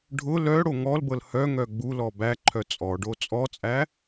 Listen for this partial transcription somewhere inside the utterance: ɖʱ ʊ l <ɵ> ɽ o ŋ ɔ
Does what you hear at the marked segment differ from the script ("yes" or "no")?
yes